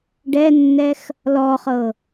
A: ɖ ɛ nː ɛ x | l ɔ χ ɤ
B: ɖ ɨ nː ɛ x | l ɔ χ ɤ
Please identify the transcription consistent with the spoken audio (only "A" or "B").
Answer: A